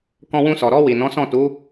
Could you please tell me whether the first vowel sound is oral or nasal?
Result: nasal